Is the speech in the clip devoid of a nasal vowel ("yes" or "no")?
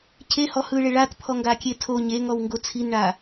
yes